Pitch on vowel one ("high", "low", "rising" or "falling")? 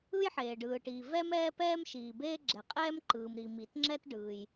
high